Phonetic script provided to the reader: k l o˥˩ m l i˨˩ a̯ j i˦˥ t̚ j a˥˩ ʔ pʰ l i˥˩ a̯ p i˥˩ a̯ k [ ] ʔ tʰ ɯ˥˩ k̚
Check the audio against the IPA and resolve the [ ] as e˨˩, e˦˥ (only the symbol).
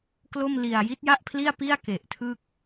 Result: e˨˩